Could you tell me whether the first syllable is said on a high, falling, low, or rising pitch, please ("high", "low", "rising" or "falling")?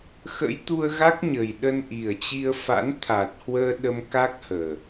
rising